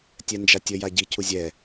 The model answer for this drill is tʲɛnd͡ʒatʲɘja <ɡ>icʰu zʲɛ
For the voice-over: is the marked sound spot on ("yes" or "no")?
no